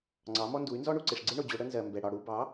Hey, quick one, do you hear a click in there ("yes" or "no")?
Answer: yes